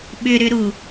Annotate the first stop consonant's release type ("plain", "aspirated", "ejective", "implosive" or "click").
implosive